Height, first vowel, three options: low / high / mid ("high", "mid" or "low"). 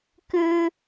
high